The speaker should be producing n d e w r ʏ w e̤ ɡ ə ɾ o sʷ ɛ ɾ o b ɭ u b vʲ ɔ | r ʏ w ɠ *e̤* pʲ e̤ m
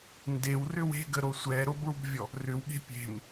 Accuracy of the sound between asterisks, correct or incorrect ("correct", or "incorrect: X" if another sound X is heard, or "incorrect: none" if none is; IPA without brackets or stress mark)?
correct